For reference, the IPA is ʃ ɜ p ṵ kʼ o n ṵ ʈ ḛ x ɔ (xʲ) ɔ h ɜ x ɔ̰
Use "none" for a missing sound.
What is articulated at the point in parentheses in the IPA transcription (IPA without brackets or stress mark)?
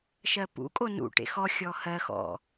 xʲ